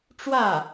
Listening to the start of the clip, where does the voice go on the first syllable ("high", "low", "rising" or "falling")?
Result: falling